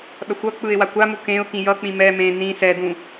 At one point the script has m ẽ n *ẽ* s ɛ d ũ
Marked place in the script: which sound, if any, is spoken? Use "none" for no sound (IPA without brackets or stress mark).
ĩ